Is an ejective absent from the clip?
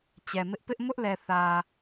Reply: yes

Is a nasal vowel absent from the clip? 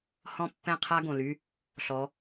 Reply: no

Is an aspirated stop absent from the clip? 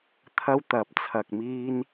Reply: no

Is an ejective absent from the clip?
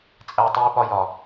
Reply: no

